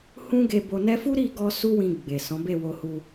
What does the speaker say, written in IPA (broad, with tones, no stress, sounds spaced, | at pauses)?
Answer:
h ũ˦ ɡ e˧ b o˧ n ɛ˦ f u˦ ɾ i˦˨ ɡ ɔ˧ s u˦ w ĩ˧ ɡ͡b e˨ s ɔ̃˨˦ b e˦˨ w o˧ h u˧